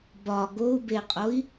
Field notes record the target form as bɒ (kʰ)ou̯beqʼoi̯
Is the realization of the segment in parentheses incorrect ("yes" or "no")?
yes